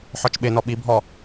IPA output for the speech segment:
ħ ɔ t͡ʃ ɓ ɪ n ɔ ɓ i bʱ ɔ

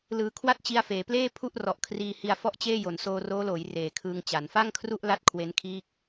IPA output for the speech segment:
l ɯː˧ kʰ w a˥˩ t̚ t͡ɕ i˧ a̯ f eː˩˦ p l eː˥˩ pʰ u˥˩ ʔ r ɔ˨˩ ʔ kʰ r iː˧ h i˧ a̯ f ɔ˥˩ ʔ t͡ɕ eː˥˩ j o˩˦ n s oː˧ r oː˦˥ l oː˩˦ j r eː˨˩ kʰ ɯː˧ ŋ t͡ɕ a˩˦ n f a˥˩ ŋ kʰ r u˥˩ ʔ l a˦˥ t̚ kʰ w e˦˥ n kʰ iː˥˩ k̚

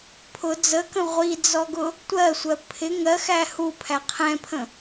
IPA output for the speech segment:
pʰ ʊ d͡z ə k ə̃ ʁʷ i d͡z ɔ ɡ ʊ | tʷ ɜ sʷ ɜ pʰ ɪ ŋ ɜ x æ h u pʰ æ qʰ ɛ̃ pʰ ə̃

